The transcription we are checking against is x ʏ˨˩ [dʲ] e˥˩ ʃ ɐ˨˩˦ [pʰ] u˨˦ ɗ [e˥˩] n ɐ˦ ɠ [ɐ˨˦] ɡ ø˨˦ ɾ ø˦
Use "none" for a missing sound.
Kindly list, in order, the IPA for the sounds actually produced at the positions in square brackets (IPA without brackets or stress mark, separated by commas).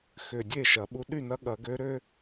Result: dʲ, ɓ, y˥˩, ɐ˨˩˦